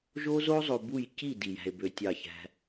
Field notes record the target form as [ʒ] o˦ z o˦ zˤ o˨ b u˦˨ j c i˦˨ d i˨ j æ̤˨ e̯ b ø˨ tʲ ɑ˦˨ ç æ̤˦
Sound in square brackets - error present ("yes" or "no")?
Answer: no